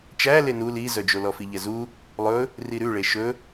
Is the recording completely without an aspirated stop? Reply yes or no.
yes